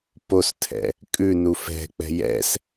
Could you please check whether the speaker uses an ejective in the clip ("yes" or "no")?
yes